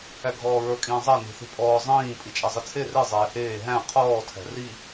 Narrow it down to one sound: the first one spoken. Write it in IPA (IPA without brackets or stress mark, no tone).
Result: æ